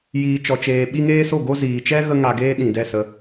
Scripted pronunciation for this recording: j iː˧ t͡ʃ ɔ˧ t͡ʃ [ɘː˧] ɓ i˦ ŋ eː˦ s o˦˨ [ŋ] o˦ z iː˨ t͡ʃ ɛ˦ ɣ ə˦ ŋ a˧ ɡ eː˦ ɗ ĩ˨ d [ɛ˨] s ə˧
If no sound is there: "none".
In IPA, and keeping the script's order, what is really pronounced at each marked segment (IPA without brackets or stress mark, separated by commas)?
eː˧, ɡ, ɛ˦˨